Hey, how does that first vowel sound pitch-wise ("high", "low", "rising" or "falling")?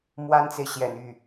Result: high